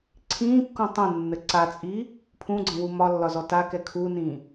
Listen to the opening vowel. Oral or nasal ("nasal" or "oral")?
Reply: nasal